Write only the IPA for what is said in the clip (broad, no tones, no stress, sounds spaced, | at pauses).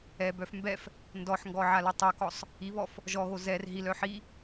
ɛ b œ f m b ɛ f | n d ɔ ħ ŋ ɡ ɔ ʕ a l o tˤ o k ɔ sˤ | i β ɔ f | ʒ ɔ ɣ o z ɛ r ɦ i l œ ħ i